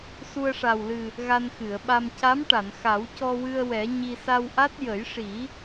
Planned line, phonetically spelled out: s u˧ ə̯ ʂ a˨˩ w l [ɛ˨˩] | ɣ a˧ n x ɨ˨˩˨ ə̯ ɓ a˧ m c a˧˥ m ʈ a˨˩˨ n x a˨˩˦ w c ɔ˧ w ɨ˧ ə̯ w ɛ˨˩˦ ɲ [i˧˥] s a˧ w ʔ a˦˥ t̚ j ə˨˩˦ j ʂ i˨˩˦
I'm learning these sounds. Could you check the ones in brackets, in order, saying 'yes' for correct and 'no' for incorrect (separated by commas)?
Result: no, no